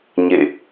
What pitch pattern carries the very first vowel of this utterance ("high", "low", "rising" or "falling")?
falling